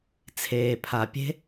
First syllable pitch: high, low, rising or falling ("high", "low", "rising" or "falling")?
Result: low